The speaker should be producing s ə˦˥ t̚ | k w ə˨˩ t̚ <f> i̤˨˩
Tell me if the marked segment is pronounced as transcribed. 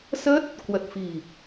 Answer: yes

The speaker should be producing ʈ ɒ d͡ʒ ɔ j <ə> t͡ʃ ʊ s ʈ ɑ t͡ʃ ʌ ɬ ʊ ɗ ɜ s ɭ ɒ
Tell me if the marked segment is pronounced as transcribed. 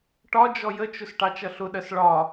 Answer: yes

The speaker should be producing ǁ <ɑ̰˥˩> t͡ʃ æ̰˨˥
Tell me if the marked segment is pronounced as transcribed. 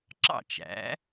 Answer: yes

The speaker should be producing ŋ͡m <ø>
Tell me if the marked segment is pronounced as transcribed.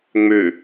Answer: yes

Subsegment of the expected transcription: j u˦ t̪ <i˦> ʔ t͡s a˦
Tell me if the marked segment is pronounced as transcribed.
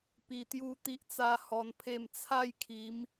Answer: yes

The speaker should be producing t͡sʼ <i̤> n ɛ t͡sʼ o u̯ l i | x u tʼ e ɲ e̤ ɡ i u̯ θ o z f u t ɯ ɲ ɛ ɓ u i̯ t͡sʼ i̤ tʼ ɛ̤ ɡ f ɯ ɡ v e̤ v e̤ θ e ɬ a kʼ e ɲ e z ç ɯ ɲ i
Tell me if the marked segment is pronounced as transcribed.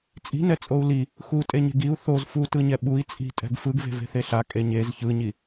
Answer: yes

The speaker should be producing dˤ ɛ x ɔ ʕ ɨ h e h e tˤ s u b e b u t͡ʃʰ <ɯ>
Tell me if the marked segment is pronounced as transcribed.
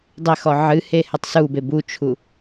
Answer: no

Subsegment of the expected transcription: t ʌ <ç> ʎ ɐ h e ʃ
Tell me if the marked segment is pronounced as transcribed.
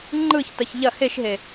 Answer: yes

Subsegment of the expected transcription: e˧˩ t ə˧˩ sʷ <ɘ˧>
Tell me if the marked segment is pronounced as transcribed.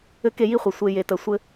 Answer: no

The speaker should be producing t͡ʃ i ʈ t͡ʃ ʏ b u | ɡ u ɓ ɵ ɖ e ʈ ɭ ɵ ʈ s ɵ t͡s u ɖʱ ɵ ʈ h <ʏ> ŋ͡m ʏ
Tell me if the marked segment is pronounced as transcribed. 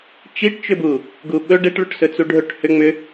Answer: yes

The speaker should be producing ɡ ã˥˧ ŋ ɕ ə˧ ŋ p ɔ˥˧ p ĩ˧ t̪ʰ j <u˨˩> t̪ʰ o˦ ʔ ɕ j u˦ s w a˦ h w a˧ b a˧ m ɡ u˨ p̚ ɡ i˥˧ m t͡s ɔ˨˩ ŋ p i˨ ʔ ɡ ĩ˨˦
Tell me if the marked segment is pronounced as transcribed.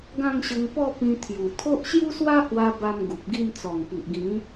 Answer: yes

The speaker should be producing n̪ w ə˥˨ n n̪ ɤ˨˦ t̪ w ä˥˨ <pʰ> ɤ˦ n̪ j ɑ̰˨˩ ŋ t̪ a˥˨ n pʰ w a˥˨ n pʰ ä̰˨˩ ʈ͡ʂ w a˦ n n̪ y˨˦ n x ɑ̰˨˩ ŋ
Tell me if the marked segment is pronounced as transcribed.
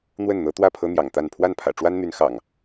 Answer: yes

